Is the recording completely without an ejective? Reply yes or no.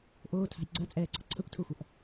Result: no